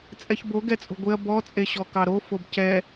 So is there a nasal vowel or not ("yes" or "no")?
no